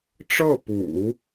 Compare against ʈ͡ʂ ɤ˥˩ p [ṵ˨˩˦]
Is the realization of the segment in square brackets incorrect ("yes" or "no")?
no